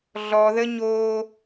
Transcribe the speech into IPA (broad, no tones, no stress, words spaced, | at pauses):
ɮɔðə ɲo